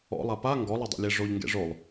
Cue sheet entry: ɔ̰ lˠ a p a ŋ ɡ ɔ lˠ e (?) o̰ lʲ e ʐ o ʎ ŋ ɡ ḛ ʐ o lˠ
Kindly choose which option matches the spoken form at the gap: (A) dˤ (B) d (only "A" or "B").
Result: A